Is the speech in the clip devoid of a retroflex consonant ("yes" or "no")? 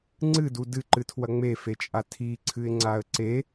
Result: yes